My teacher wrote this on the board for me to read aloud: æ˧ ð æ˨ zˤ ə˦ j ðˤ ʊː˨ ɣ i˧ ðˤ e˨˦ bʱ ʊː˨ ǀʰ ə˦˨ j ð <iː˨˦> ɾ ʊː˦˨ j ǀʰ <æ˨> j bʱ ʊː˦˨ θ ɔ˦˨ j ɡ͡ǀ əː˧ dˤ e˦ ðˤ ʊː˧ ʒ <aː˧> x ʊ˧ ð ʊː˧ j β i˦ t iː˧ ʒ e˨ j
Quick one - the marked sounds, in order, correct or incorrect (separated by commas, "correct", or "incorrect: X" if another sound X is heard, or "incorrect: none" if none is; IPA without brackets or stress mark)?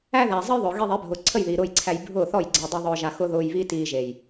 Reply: incorrect: iː˨, incorrect: æ˧, incorrect: a˧